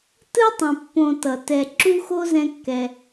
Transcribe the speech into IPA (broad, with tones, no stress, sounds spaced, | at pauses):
t ɯ˥ tˤ ɛ̃˨ pː õ˨ t ʌ˨ t ɛ˨ ǁ u˥ x o˥ z ɛ̃˦ kː ɛ˨